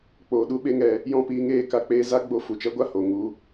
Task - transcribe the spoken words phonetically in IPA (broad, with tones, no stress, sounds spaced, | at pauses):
k͡p oː˨ ɗ u˦ ɓ e˦ ŋ ɛ˧ | j ɔ̃˦˨ p iː˧ ŋ eː˦˨ k a˧ k͡p eː˧ z a˦ ɡ͡b o˧ f u˨ t͡ʃ ɛ˦ ɡʷ a˦ h oː˨ ŋ u˧